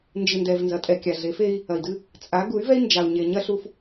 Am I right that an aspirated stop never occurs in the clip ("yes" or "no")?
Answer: yes